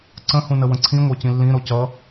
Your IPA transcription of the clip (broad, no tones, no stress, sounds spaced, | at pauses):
ǀ ə̃ h ũ n ə w ə̃ ǀʰ ĩ ŋʷ œ c ĩ lː ĩ ɾ o c ʌ